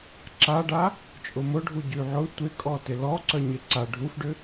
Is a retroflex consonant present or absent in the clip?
present